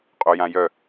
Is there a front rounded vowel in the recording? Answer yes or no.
yes